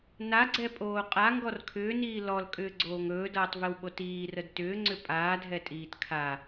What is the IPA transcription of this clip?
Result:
n a ɡ͡ǀ ɛ pʼ oː qʼ a ŋ ɡ ɔ r kʰ ʏː n iː l ɔ l kʼ ʏː ɡ͡ǀ oː ŋ ɵː d ʌː tˤ v i w ɓ o t iː r ə d t ʏː ŋ͡ǀ ʏ pʼ aː dʱ ɛ tʼ iː t kʰ a

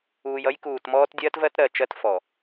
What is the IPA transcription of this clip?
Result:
uː˨ j ʌ˦ j k uː˨ t m ɔː˦ t dʲ ɜ˦ t v ɜ˦ t ɾ ɜ˨ t͡ʃ ɜ˦ t f ɔ˨

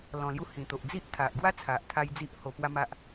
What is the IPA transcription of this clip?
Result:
l ɔ̃˨˩ l j u˧ h ĩ˨˩ t̪ o˨ ʔ d͡z i˦ ʔ t̪ʰ a˨ ʔ ɡ w a˦ t͡sʰ a˨ ʔ t̪ʰ a˧ j d͡z i˦ ʔ h o˧ p w a˦ m a˦ ʔ

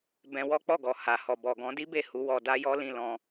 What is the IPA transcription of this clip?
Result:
b ɛ̃˧ w ɔ˦ k͡p ɔ˦˨ ɡ ɔ˨ h a˨ h ɔ˨ b ɔ˨ ɡ ɔ̃˨˦ d i˦ b e˦˨ h u˨˦ w ɔ˧ d a˦ j ɔ˦ l ĩ˦˨ l ɔ̃˧

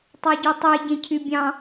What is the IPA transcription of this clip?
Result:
tˤ ɑ ɟ y tˤ e ɟ ẽ cʰ y bʲ ɑ̃

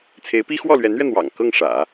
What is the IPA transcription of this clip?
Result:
t͡sʰ e˧˥ ɪ̯ p i˥ x w ɔ˥˩ l ɥ ɛ˧˥ n ɥ ɛ˧ n̪ w ɑ̰˨˩ ŋ k ɤ˥˩ ŋ ʂ ä̰˨˩˦

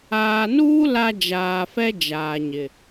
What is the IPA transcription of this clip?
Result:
aː˨ n uː˦ l a˦ d͡ʒ aː˨ f ɛ˦ d͡ʒ aː˨ ɲ ɪ˨

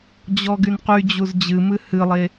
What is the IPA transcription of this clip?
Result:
d͡ʑ ɔ ɡ y n q y d͡ʑ u z d͡ʑ ɨ m ɨ h ɨ lˠ e

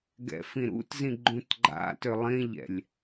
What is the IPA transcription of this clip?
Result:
ɡ ɛ̰ f ĩ ɾ ṵ t z ĩ ɡ͡ǃ ũ t ɡ͡ǃ a̰ t ø lˠ ĩ ʎ ɛ̰ lʲ

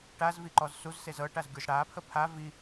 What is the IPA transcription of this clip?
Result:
ʈ a z v i ǃ ɔ z s u z s e z ɤ ʈ a z ɡʲ u z ɽ a pʰ ə pʰ a v i

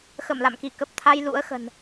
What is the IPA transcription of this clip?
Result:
x ə˧˩ m l a̰˧˨ m k i˧˩ k ə˨˩ p̚ t̪ʰ a˧ j l ṵ˧˥ ə̯ x ə̤˨˩ n

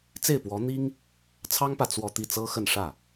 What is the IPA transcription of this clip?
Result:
t͡s e˥˩ ɪ̯ p w ɔ˧˥ n̪ i˥ ŋ | t͡sʰ ɑ˥ ŋ p ä˨ t͡s w ɔ˥˧ t̪ i˥˩ t͡s ɤ˥ x ə˥˧ n ʂ ä˥˩

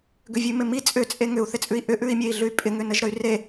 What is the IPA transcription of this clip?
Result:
ɡ ʏ vʲ ʉ m ɪ m i t͡sʼ ʏ t͡sʼ e ŋ ʏ u̯ θ ɪ t͡sʼ ʉ i̯ ʔ ʏ ʔ ʉ i̯ mʲ e i̯ ɮ ʉ y̯ pʼ ɪ ŋ ʏ n ə ʒ ɾ ə y̯ r e

